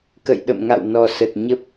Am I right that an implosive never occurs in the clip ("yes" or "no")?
no